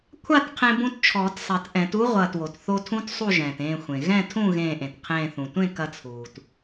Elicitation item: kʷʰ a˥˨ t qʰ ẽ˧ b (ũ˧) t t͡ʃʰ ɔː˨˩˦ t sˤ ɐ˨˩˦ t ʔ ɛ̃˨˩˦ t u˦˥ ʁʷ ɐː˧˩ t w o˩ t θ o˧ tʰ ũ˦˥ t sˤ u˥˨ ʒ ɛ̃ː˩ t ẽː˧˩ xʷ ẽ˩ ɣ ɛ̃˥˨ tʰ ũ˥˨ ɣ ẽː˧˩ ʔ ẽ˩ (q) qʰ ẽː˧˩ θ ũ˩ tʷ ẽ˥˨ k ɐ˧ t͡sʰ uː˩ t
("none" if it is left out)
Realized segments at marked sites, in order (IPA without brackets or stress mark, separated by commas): ũ˧, t